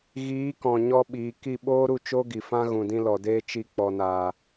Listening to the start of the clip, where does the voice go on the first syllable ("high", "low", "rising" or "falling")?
rising